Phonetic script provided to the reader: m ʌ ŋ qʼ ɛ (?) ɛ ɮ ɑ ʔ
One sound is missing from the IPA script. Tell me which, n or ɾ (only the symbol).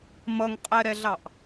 ɾ